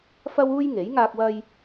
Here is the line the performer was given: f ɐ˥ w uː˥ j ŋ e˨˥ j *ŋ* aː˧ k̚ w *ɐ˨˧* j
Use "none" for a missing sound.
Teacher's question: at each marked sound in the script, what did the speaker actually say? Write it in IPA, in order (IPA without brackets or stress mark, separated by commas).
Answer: ŋ, ɐ˧